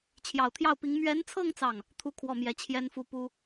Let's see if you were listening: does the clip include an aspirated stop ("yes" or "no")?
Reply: yes